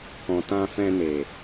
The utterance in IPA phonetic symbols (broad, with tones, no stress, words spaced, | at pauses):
kɔ̃˨tã˧fɛ̃˧ne˨